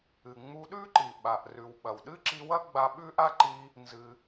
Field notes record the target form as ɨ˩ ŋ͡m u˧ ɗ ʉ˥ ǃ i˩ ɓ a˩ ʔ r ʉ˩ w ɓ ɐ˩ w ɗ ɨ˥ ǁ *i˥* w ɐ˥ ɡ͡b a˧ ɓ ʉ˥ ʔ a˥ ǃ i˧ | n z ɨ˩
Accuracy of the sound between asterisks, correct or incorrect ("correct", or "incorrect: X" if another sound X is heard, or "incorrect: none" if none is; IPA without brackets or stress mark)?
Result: incorrect: i˧